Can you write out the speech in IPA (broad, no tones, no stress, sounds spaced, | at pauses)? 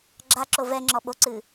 ɡ͡ǁ a ǁ o v ɛ ŋ͡ǁ ɔ ɓ o ǀ ɨ